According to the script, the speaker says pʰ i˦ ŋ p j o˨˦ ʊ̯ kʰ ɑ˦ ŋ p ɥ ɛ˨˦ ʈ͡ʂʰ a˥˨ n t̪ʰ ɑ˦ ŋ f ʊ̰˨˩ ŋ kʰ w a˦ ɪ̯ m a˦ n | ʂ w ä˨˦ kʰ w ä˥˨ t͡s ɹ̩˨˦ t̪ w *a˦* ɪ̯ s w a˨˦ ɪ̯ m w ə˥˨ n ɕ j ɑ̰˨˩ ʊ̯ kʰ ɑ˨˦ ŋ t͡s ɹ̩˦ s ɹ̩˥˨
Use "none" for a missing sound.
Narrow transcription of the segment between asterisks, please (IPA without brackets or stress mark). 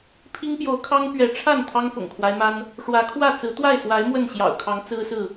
a˥˨